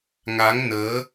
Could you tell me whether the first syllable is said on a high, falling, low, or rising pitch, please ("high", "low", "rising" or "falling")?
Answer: rising